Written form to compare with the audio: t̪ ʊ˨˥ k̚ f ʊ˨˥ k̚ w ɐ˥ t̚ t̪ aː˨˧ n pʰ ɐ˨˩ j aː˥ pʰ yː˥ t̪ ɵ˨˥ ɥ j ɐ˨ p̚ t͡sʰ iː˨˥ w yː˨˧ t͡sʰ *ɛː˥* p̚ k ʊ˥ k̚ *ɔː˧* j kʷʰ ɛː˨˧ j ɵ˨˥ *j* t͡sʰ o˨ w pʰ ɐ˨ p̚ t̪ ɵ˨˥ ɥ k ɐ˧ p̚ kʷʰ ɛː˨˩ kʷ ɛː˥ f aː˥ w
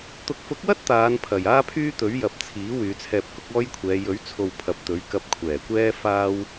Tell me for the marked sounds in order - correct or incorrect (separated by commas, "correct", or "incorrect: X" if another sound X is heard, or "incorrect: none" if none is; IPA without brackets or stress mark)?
incorrect: ɛː˧, incorrect: ɔː˥, incorrect: ɥ